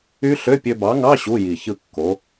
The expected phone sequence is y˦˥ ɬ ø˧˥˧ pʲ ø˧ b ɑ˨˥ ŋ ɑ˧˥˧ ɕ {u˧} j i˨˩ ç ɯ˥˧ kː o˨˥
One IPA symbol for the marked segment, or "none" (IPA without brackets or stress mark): u˧˥˧